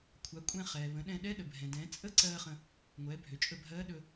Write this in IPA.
kʷʰa˩˧kʷʼɛ̃˧ χɛː˩ βə̃˩˧ɗɛ̃˧ ɗɛ˧˥ɗə˩bʱɛ̃˩ dɛ̃ː˩˧t͡sʼə˥ǀɜː˧ χə̃˧ | ŋʷɛː˩˧bʱø˩t͡ʃʼɵ˧bʱɜː˧˥ ɗɵ˧

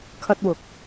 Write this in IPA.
kʰɐ˥t̚wʊ˨k̚

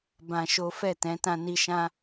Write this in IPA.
bã˧ʃo˦ fɛ˦˨tɛ̃˨˦ tã˧ni˧ʃã˦

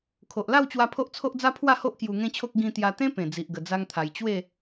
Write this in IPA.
kʰo˨ʔla˥˧wt͡ɕwa˧ pʰo˦ʔt͡sʰo˦ʔ d͡za˦pʰwa˥˧ho˦ʔ kju˧ŋẽ˦t͡ɕʰo˦k̚ ɡĩ˧t̪ja˧t̪ẽ˦ pẽ˨˩ d͡zi˨ʔɡə˨˩ d͡za˦ŋt̪ʰa˧j t͡ɕwe˥˧

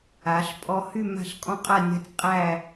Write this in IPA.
a˩˧ɬpʼɔ˧hy˥˧ ma̤˥˧ɬkʼɔ̃˥qʼa˥˧nʲa̤˥tʲ qʼæ˥˧

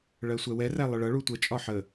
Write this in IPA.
ɭɜsʷɛwɛræ lˠəɭʌɭu tʷət͡ʃʼɒ ħə

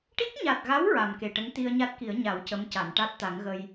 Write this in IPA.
ʈi˦˥k̚ɲa˨˩t̚ɣa˧˥w ɹa˨˩mke˨˩ʈə˧˥ŋ t̪i˧ə̯ɲa˦˥t̚ki˨˩˦ə̯ ɲa˨˩˦wcə˧˥m ca˨˩˨nʈa˦˥t̚t̪a˨˩˦ŋɣə˧j

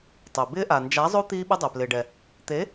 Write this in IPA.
tˤɪː˩ bɪː˦˥ʔa˩ nd͡ʒa˨˥zˤo˦˥ t̪iː˦˥ɓɪ˦˥dˤɛ˩ plɪː˩ɖɛ˩ | t̪e˨˥

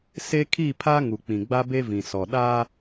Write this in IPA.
se˦kʰi˦˨pʰa˦ ŋu˨k͡pĩ˨ɡ͡ba˦ be˦vĩ˨sɔ˨ ɗa˦

